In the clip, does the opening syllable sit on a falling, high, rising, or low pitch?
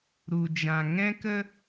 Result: low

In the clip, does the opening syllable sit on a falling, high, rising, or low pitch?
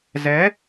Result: rising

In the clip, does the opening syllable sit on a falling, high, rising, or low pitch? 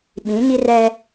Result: rising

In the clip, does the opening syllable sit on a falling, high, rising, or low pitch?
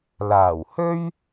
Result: low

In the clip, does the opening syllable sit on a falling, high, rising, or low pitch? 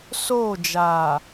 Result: falling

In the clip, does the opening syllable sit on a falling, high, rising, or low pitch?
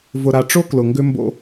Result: low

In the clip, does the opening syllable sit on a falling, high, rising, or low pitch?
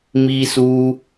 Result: high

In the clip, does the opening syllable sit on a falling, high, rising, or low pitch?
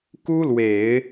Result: high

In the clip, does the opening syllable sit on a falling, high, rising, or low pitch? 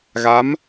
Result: rising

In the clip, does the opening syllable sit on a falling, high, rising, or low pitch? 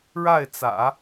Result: falling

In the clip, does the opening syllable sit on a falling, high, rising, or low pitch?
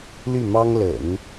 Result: falling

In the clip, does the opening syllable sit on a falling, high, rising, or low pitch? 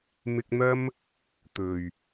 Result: high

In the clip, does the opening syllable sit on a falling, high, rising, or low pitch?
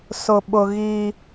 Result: low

